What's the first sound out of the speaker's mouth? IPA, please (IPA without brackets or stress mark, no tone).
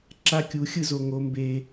ǁ